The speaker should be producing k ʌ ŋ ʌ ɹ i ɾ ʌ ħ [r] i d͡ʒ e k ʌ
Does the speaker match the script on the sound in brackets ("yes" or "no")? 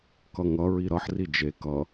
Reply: yes